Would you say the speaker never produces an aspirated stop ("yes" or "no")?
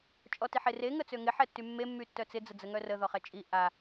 yes